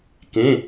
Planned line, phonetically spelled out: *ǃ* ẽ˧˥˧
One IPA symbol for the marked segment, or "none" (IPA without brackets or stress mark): k